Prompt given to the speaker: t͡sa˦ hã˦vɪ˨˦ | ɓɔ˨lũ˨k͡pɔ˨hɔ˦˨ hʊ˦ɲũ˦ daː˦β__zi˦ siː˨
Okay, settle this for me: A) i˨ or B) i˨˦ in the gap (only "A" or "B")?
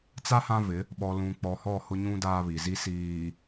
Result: A